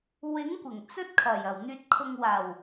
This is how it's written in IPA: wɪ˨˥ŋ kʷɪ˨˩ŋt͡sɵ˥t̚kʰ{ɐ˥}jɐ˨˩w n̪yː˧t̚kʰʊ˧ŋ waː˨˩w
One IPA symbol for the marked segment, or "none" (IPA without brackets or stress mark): ɐ˨˩